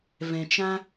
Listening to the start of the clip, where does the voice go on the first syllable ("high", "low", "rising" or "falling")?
low